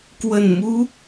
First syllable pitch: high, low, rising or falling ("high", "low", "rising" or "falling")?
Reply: low